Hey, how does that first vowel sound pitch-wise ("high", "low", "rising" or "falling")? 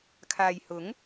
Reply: low